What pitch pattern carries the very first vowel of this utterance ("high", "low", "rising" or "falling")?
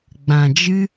low